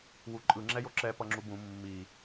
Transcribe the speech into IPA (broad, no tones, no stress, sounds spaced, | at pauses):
w u ǃʼ ɯ ŋ͡ǁ ɛ j o ǁ ɛ p ʌ ŋ͡ǁ u b ũ mː i